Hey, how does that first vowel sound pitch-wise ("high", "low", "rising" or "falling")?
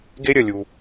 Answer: high